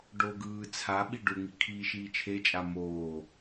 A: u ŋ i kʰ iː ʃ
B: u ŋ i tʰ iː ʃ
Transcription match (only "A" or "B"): A